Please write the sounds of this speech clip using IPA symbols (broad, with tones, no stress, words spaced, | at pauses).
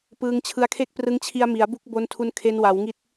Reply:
pɯː˧ŋt͡ɕʰɯ˦˥a̯kʰe˥˩k̚prɯ˦˥ŋ t͡ɕʰi˧a̯mi˩˦a̯bu˦˥k̚bo˧n tʰu˧n kʰe˧nwa˩˦wŋi˦˥t̚